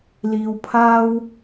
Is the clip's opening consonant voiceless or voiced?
voiced